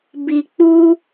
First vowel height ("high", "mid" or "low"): high